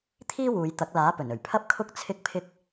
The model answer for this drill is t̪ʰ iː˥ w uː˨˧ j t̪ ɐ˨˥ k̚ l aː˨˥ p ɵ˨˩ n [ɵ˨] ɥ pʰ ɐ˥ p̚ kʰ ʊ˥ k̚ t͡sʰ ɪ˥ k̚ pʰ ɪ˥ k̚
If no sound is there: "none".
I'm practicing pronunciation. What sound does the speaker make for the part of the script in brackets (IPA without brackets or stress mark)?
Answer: ɵ˨˩